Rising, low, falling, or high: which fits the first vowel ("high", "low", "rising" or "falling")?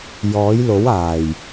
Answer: rising